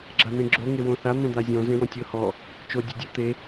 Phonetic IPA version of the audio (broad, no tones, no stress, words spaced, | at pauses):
ɡ͡ǁan̪ẽɡ͡ǁo ŋewõθa n̪õd̪azʲɔ̃ zẽwɔ̃tʲɤ hɔ | t͡ʃo dʲodʲu t̪e